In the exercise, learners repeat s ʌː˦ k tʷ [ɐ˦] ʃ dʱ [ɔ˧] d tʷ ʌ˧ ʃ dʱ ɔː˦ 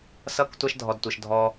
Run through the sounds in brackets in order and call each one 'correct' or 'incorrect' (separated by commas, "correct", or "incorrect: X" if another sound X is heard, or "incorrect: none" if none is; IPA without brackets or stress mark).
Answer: incorrect: a˦, correct